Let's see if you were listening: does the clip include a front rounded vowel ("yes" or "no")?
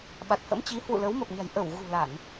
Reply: no